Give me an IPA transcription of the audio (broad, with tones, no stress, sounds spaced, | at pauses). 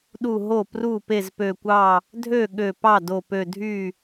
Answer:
ɗ u˧˩ ɦ o˥˩ p r u˥˩ p e˥˩ z p ø˧˩ kʷ ɑ˥˩ | dʱ ø˥˩ ɠ ø˧˩ p ɑ˥˩ d o˧˩ p ø˧˩ dʱ y˥˩